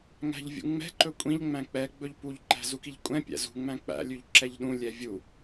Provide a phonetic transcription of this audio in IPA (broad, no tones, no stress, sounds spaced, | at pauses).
ŋ æ̤ ʎ vʲ ṵ ŋ͡m ɛ̤ ǃ ɵ kʷʼ ĩ ʎ ŋ͡m æ̃ k͡p ɛ ɡ͡b ɵ ʎ p u ʎ ǃ æ̤ z u k i ʎ kʷʼ ɛ̃ pʲ æ̰ z ṳ ŋ͡m æ̃ k͡p æ̰ lʲ ʉ ʎ ǁ ɛ ʎ ɗ ũ lʲ ɛ vʲ u